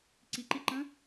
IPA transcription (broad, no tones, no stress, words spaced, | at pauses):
ǀiǃiǃə̃